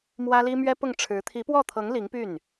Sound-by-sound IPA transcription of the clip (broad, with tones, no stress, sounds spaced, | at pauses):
m w ä˥ l i˥ m ɥ ɛ˥ p ʊ˥˩ ŋ ʈ͡ʂʰ ɻ̩˧˥ t̪ʰ i˧˥ p w ɔ˥˩ t̪ʰ ɤ˧˥ ŋ l i˧˥ ŋ p y˥˩ n